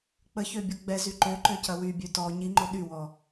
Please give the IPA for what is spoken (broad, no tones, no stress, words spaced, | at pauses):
k͡pəçøbʲo ɡ͡bɛzy ǃøǃøcɐ wybʲø tɔ ɲiŋ͡ǃo ɗywɔ